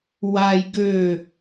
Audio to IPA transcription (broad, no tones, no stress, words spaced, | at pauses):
waj ɡø